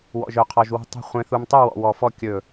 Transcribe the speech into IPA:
w ɔ̰˧ ʒ œ˧ qʰ ɔ˧ ʒ w ṳ˥˨ tˤ ṳ˥˨ χʷ ẽ˧ θ u˧ m tˤ y˥˨ w ɔ̰˧ w ɔ˧ f ɔ˥˨ kʲ ɵ˥˨

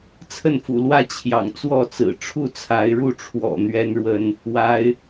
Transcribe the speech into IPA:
t͡sʰ ə˥˨ n f ṵ˨˩ l w ä˦ t͡ɕʰ j ɑ̰˨˩ ŋ t͡s w ɔ˥˨ t͡s ɹ̩˨˩ ʈ͡ʂʰ u˥˨ t͡sʰ a˨˦ ɪ̯ ɻ u˥˨ ʈ͡ʂʰ w ɔ̰˨˩ n̪ ɥ ɛ˦ n ɻ w ə˥˨ n | w a˨˦ ɪ̯

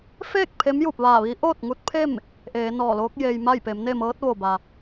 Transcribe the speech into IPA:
f eː˥˨ k̚ pʰ e˧˥ m j u˧˩ p̚ ʋ aː˧˩ ʋ iː˧˥ ʔ oː˥˨ t̚ ŋ u˧˥ t̚ pʰ e˥˨ m | ʔ eː˩˧ n ɔː˧˩ l oː˧˥ k̚ j e˧ j m a˥˨ j p e˩˧ m n e˥˨ m ɤː˧˥ t̚ ʋ o˧˩ b a˩

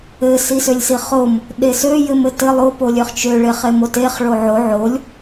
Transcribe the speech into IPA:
ɘ s i s ø lʲ s i χ o m | ɗ e s ø j ɘ m ɘ t ɘ lˠ o p o lʲ ø χ t͡ʃ ø ɭ e χ e m o t e χ ɭ o ʕ o ʕ o lʲ

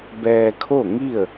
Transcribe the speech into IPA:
b ɛː˧ kʰ o˥˨ ŋ i˥˨ ə̯

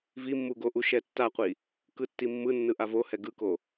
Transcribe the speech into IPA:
v i mː u ɡ o ʔ u ʃ ɛ tː a qʷ i | k ɯ tː i mː ɯ nː ɯ ʔ a v o h ɛ ɡ ɯ k o

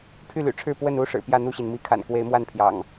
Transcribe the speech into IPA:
pʰ y˥˨ l y̰˨˩ ʈ͡ʂʰ ɻ̩˥˨ p w ə˥˨ n u˦ ʂ ɻ̩˨˩ p j ä˥˨ n̪ u˥˨ ɕ i˩ n m i˨˦ kʰ a̰˨˩ n k w e˨˦ ɪ̯ m w a˥˨ n pʰ j ɑ̰˨˩ ŋ

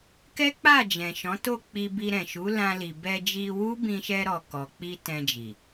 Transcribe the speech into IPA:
k ɛ˦ k͡p a˦˨ d͡ʒ ɛ̃˨ ʃ ɔ̃˨˦ t o˦˨ k͡p i˧ b i˧ ɾ ɛ̃˨ ʃ u˨˦ l ã˧ l i˨ b ɛ˧ d͡ʒ i˧ w u˦ b ĩ˧ ʃ ɛ˧ ɾ ɔ˨ k ɔ˨ k͡p i˧ t ɛ̃˧ d͡ʒ i˨

